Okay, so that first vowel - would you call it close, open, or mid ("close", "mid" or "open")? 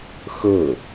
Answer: mid